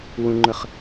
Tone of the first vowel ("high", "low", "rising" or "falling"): low